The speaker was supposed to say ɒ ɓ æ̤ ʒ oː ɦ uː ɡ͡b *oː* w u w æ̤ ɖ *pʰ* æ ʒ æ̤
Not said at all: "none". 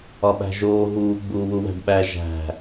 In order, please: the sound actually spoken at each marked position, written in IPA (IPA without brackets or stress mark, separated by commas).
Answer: uː, ɓ